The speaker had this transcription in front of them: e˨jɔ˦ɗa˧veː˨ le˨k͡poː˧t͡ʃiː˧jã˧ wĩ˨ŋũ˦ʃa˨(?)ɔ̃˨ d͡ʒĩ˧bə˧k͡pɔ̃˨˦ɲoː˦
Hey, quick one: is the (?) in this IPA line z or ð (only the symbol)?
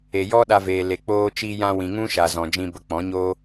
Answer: z